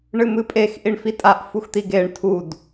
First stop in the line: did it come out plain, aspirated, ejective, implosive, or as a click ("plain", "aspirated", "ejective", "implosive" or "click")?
ejective